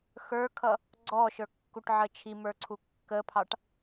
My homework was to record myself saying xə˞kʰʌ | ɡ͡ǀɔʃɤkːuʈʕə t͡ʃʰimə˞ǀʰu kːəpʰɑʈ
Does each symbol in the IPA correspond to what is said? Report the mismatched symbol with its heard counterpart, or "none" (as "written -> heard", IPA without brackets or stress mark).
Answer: ɤ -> ə˞